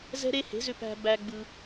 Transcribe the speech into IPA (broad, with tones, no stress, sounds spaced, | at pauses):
z ɛ̤˦ ɾ e˦ h e̤˨˥ z ʏ˦ p æ̤˦ b æ˦ ɡ͡b ɯ˦